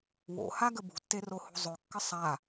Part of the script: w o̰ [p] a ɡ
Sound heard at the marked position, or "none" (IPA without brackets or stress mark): h